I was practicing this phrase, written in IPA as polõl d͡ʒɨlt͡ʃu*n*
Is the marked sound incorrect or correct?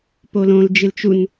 correct